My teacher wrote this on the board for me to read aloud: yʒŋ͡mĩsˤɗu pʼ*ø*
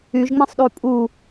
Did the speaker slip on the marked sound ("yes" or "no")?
yes